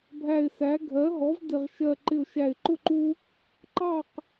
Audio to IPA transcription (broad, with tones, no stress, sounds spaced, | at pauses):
bʱ æ˧˩ ɪ̯ s æ˩˥ ɡʱ ɜ˩˥ ɦ ɔ˩˥ v d ɪ˧˩ ʁ ʃ ɜ˧˩ ǃ ɪ˧˩ ʊ̯ ʃ æ˧˩ ɪ̯ ǃ ʊ˥˨ ǃ u˦ | ǃ ɑ˥˨ q